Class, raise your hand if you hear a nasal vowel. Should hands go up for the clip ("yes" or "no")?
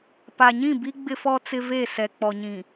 yes